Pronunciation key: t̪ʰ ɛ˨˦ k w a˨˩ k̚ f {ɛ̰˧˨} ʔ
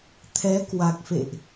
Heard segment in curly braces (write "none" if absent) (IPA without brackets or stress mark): ḛ˧˨